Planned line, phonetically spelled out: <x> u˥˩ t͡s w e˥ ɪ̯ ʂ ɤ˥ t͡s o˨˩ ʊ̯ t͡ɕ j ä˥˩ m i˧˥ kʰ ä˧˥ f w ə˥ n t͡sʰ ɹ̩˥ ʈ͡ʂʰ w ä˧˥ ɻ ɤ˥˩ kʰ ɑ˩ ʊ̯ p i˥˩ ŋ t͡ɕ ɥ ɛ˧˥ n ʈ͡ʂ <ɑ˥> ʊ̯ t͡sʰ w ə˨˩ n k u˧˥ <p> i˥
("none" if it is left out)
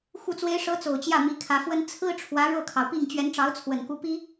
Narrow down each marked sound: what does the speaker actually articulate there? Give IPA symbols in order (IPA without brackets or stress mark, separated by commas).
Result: x, ɑ˧˥, p